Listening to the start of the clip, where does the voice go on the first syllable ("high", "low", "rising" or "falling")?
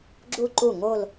falling